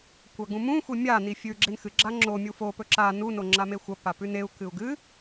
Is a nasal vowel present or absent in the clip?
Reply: present